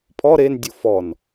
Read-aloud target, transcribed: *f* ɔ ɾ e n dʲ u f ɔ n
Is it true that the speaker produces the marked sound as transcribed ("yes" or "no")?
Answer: no